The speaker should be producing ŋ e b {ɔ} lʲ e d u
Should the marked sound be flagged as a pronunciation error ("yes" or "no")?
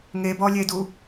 no